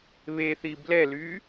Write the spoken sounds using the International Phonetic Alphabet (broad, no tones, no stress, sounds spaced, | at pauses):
β e θ i b l ɛ l yː